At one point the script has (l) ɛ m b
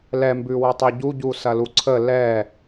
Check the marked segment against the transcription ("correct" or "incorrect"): correct